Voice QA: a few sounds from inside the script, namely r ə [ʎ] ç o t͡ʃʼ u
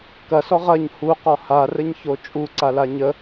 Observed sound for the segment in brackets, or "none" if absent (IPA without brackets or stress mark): ɲ